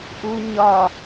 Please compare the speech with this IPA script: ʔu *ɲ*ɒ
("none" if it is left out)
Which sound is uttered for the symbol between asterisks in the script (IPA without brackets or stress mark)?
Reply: ɲ